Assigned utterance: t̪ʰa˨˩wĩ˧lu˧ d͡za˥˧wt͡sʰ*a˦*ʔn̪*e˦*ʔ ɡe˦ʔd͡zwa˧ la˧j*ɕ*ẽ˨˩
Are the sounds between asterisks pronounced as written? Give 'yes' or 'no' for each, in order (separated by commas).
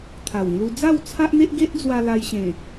yes, yes, yes